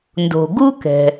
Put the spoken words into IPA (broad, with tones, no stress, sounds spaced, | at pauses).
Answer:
n d o̤˩ ɡ u˥ k ɛ̤˩